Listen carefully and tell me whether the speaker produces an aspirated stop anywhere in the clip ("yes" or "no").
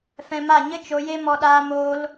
no